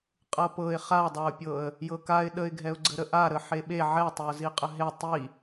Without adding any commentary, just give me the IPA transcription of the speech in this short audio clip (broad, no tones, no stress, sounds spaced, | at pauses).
qʼ ɤ p ɤ ɪ̯ χ a dˤ a ʊ̯ pʲ ɤ ə̯ | j ɤ k a ɪ̯ ɗ ə ɪ̯ ɡʱ ɛ ʊ̯ ɡ͡ǀ ə ɾ ə ʔ a ɾ ə ħ e ɓ e ʕ ɛ tˤ e ʊ̯ z i qʼ ə ɦ e tˤ i